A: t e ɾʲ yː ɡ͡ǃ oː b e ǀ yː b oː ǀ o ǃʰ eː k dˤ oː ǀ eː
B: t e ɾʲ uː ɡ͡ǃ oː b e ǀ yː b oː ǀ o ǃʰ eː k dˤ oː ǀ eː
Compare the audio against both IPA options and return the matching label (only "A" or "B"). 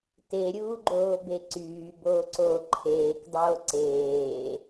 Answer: B